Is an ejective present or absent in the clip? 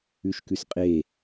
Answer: present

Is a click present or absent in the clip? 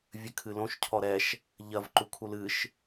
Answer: present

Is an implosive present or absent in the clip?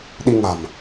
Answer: present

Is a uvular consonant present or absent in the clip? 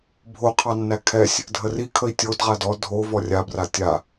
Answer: present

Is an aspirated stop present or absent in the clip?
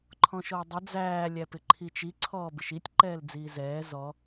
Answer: present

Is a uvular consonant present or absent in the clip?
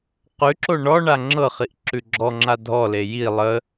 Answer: present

